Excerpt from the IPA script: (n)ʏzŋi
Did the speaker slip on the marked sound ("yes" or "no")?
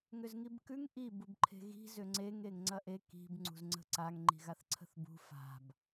yes